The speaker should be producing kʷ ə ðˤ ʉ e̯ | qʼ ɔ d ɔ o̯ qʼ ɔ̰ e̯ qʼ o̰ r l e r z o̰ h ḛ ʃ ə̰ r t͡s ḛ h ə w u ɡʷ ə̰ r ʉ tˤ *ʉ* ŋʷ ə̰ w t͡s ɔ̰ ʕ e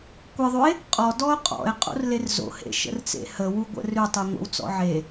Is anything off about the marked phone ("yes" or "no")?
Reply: no